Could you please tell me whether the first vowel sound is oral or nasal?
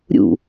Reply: oral